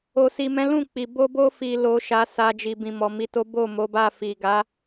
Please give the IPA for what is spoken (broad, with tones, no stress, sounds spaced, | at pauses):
o˨ s i˨ m ɛ̃˨˦ l ũ˦˨ k͡p i˨ b o˧ b o˧ f i˨ l o˨ ʃ a˨˦ s a˧ d͡ʒ i˨ b ĩ˨ m ɔ˨ m i˧ t o˦ b o˦˨ m o˨˦ b a˦˨ f i˨ ɡ a˨˦